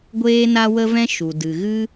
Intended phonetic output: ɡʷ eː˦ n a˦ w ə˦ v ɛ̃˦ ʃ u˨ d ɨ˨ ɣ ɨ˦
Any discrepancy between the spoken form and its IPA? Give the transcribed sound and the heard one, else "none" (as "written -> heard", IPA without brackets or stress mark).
none